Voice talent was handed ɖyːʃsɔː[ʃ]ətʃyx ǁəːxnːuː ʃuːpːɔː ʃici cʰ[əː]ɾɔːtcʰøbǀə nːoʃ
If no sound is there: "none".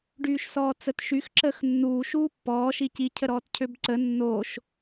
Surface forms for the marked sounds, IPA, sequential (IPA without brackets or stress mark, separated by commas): t͡s, ə